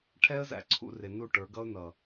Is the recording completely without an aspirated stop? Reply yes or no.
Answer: no